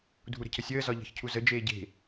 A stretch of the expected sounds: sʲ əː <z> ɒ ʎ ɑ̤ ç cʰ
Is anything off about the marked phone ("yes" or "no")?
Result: no